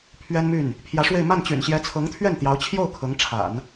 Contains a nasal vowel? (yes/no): no